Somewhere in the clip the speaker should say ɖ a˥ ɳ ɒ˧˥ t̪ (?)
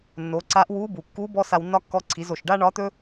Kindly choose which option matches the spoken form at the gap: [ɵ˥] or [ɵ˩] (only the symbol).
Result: ɵ˥